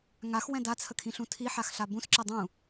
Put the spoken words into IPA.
ŋaxwɛ̃ dat͡sʰəkʰĩɬũ tʰiħaxɬa bũsǁɛ dˤũ

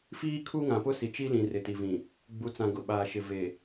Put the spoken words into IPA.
fiː˦kʰu˦ŋã˨pʊ˦ si˨t͡ʃi˦lĩ˨ rɪ˨ti˨vĩ˨ | ɡ͡bu˨t͡sã˨ ɡʊ˨ɓaː˨ʃɪ˨ ve˨

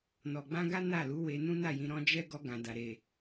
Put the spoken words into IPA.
nɔ˨ɡ͡bã˧ɡa˦ na˦˨lu˨˦ we˧nũ˦na˦˨jĩ˨˦ ɾɔ̃˧d͡ʒɛ˦ ɡɔ˧ɡã˨da˨ ɾe˨

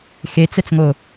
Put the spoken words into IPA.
xet͡sɛt͡sŋo

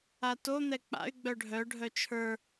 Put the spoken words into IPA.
ato n̪ɛk͡pa̰y̯ ɡ͡bœɖʱœ ɖʱœt͡ʃʰə˞

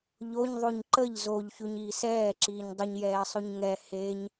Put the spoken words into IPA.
ʎoɲðˤʉɲ ǃəʎ zoʎçʉɲiːs ɛːǁiːɲ dˤəɲjɛːsˤʉɲ ŋɛ heɲ

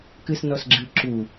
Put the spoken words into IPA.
kɨsnɔsɡ͡ǁɨ ǁu

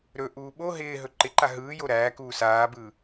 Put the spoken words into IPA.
ɾɵʔuː ɓo ɦɪː ɦɵǃɪǃa ɦɯː joɾæːkuː saːbɯ

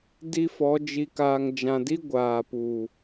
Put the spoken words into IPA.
di˦fɔ˨˦ d͡ʒi˨kaː˨ŋd͡ʒã˨di˦ ɡʷaː˨puː˨

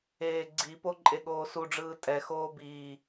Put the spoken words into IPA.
eːɡ͡ǀipo ǃʼeɠoːsuɖ͡ʐɯː tʼɛxoː biː

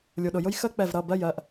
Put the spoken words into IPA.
lʲu˩ɗʊ˩jʊ˥j xə˥k͡pɛ˧˩vɾʌ˩˧˩ bɜ˥˨j ɜ˧˩ʔ

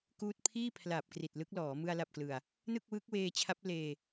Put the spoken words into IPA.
kuː˥˩t̚ pʰiː˥˩pʰla˨˩p̚ kri˨˩t̚lɯ˦˥k̚lɔː˩˦ mɯ˧a̯la˨˩p̚klɯ˨˩a̯ | nɯ˥˩k̚wɯ˦˥k̚weː˧t͡ɕʰa˦˥p̚ leː˧

